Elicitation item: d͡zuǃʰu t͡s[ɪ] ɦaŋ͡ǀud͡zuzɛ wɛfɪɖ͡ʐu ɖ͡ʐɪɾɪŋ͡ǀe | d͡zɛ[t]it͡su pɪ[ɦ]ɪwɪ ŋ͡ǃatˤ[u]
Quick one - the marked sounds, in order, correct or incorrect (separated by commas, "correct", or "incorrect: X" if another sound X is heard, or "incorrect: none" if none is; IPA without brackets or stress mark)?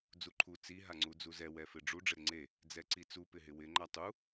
incorrect: i, incorrect: ǀ, correct, correct